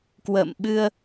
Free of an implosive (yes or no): no